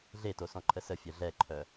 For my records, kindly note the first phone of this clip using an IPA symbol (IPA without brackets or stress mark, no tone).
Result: ɮ